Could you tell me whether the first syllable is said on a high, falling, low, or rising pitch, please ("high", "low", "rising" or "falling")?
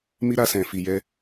high